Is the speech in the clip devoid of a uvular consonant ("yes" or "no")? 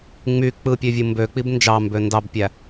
yes